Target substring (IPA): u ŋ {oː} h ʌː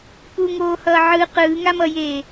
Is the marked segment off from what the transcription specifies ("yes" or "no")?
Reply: no